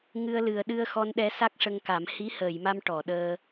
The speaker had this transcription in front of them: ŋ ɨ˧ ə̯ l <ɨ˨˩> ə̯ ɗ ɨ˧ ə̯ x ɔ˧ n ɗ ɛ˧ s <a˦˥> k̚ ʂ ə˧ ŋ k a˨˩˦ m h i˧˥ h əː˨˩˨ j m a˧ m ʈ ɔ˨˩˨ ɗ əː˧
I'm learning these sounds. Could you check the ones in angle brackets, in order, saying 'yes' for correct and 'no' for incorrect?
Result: yes, yes

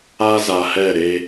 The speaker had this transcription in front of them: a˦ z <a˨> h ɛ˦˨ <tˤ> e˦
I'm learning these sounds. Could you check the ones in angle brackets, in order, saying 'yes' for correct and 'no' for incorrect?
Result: yes, no

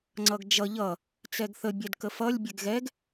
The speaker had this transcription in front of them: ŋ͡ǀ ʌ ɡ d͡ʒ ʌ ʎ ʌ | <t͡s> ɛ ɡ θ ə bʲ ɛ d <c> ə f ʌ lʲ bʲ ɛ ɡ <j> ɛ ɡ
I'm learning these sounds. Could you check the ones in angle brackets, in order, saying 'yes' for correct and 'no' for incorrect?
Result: yes, no, no

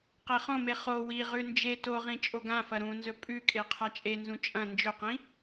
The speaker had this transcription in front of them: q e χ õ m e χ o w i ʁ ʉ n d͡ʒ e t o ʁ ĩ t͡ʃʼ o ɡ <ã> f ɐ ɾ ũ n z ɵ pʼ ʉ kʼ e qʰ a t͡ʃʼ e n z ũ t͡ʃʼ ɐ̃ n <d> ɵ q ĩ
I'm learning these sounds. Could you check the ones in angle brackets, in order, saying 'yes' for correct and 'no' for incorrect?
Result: yes, no

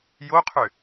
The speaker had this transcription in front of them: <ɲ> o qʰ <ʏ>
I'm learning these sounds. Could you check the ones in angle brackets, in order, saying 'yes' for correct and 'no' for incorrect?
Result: no, yes

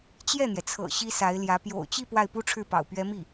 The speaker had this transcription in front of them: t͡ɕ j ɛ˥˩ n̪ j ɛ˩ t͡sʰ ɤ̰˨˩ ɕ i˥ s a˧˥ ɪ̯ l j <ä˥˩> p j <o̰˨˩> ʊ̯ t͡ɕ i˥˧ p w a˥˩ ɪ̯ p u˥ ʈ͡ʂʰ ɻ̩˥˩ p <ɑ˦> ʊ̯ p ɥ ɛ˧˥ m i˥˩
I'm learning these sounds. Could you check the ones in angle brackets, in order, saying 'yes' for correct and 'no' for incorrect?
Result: no, yes, no

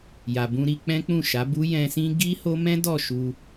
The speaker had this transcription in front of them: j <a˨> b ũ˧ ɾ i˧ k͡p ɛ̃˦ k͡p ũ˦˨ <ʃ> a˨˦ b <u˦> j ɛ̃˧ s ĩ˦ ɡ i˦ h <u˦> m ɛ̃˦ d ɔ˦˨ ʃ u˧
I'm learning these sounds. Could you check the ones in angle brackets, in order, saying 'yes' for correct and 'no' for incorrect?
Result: yes, yes, yes, no

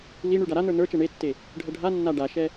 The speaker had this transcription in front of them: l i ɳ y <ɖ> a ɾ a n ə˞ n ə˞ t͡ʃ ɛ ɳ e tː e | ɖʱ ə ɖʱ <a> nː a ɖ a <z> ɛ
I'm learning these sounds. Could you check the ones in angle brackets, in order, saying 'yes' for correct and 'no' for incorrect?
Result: yes, yes, no

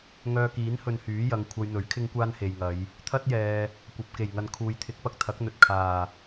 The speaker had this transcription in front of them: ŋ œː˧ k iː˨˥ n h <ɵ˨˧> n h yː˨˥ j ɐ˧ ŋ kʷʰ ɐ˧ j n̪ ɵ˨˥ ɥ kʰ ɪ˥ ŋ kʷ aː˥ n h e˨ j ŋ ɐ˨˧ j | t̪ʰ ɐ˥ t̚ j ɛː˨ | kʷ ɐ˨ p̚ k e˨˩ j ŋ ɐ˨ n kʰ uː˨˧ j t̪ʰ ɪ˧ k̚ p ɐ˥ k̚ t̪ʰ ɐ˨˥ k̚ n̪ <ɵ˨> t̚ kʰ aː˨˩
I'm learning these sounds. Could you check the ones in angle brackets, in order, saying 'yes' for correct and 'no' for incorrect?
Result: no, yes

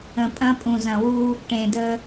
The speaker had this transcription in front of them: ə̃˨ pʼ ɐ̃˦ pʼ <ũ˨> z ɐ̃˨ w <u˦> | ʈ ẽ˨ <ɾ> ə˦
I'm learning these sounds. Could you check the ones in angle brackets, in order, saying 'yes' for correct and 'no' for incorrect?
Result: yes, yes, no

